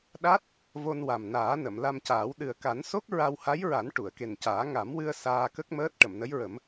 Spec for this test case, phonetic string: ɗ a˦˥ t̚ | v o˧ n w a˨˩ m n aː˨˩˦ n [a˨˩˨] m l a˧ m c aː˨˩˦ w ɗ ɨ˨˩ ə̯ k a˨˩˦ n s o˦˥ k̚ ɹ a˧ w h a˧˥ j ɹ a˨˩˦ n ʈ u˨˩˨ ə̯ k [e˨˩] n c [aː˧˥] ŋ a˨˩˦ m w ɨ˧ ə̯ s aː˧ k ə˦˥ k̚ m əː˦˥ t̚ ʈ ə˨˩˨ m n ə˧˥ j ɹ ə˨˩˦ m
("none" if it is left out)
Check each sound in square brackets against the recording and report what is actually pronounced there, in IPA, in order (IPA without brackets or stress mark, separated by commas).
ə˨˩˨, e˨˩, aː˨˩˦